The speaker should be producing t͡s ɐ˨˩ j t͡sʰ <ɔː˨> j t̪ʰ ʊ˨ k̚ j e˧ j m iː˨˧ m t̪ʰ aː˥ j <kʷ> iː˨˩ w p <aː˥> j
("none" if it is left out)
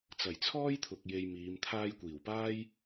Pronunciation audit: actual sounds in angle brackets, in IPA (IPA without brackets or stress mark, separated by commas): ɔː˥, kʷ, aː˥